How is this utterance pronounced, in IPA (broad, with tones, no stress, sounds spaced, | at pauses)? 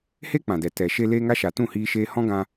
h e˦ k͡p ã˨ d ɛ˨ t ɛ˨ ʃ e˧ l eː˧ ŋ a˧ ʃ a˨ t ũ˦˨ h iː˧ ʃ eː˧ h ɔ̃˦ ɡ ã˧